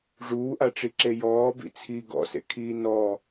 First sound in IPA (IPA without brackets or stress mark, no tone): ʐ